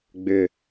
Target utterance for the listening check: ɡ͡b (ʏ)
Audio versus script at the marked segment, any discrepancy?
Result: no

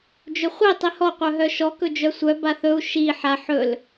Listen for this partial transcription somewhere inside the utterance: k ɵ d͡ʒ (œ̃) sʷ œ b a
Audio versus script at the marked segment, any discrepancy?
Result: yes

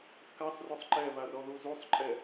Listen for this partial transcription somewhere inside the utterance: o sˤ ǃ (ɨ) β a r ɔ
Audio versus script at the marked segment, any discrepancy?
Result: yes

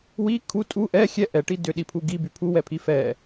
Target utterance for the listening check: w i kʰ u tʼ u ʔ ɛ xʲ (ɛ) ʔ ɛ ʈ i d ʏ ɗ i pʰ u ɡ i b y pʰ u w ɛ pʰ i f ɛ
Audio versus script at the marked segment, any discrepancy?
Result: no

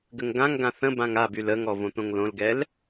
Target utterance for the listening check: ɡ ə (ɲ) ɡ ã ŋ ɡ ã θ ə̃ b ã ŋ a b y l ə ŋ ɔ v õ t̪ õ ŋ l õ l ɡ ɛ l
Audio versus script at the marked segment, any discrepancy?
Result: yes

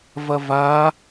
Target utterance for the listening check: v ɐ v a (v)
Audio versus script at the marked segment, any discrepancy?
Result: yes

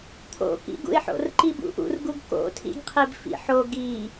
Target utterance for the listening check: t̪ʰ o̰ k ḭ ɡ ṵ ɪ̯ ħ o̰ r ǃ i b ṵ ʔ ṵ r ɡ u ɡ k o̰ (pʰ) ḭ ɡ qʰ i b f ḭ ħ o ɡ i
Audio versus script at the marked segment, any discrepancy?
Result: yes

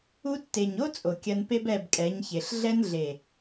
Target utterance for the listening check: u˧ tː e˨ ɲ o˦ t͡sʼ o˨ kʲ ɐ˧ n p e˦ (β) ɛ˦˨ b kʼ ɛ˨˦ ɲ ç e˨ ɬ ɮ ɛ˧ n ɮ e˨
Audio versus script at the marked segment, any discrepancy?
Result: yes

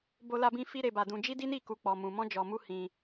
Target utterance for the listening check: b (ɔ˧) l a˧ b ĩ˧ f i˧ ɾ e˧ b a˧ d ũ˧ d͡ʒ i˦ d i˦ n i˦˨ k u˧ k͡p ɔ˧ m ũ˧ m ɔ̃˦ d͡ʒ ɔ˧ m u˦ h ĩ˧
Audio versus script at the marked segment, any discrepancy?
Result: yes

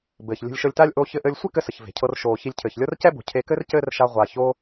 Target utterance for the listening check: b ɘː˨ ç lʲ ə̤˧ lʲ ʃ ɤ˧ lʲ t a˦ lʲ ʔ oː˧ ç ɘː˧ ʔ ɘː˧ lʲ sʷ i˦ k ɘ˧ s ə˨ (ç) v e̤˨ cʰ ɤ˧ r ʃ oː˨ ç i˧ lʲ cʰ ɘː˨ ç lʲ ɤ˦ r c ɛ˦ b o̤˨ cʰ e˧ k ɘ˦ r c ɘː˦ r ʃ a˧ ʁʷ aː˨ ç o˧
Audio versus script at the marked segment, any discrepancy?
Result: no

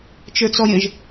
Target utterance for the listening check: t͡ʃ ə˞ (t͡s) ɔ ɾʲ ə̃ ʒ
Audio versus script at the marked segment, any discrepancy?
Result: no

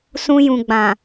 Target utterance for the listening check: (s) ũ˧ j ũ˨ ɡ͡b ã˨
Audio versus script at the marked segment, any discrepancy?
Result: no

